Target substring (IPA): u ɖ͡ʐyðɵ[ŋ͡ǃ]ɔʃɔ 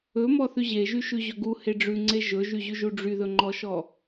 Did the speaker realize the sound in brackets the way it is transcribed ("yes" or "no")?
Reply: yes